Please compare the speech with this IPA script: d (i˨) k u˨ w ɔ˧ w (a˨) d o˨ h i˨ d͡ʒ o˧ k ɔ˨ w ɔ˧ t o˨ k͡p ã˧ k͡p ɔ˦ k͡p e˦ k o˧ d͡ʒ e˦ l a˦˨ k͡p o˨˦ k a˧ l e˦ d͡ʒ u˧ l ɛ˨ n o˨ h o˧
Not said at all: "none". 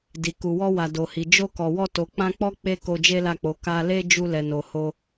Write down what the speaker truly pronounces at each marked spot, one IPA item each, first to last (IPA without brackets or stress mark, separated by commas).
i˨, a˨